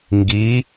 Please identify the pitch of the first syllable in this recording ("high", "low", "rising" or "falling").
rising